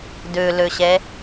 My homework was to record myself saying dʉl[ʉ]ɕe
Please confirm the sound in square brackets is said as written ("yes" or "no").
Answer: yes